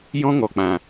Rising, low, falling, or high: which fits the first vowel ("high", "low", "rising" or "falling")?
high